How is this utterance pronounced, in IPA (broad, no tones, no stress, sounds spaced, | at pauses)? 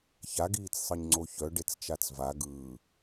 ç a ɡ iː t͡s sˤ ɯ ɲ ŋ͡ǀ o ç œ ɖ e t͡s t͡ʃ a t͡s v a ɡ ɯː